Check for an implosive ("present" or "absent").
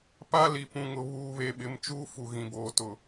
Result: present